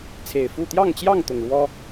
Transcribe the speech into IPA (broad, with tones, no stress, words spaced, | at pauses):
t͡sʰe˨˩ɪ̯fu˥˨ t̪jɑ˥˨ŋt͡ɕjɑ˥˨ŋ t̪ʊ˨˩ŋɻwɔ˦